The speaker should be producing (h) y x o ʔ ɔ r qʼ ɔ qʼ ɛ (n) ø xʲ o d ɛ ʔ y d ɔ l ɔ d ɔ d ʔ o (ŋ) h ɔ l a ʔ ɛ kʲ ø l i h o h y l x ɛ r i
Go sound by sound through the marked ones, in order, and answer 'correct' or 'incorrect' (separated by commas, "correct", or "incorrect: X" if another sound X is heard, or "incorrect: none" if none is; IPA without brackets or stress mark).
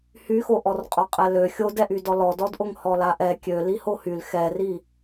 correct, incorrect: l, correct